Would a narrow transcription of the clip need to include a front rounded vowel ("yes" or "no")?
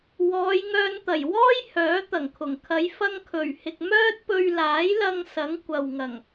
yes